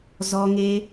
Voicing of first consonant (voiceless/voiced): voiced